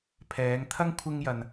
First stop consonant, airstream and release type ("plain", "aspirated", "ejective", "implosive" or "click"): aspirated